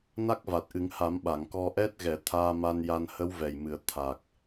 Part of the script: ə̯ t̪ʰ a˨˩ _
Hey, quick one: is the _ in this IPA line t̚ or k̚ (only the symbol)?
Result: k̚